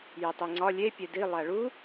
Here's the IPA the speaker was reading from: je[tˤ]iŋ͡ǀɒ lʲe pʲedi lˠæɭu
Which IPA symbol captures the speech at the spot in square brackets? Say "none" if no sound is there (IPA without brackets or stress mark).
tˤ